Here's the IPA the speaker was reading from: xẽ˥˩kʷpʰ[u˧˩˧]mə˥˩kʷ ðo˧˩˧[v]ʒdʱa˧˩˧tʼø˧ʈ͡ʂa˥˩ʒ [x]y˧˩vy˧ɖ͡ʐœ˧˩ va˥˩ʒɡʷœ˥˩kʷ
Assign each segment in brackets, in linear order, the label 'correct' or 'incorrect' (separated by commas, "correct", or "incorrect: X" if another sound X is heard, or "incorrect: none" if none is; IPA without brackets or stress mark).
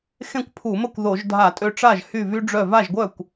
correct, incorrect: none, incorrect: h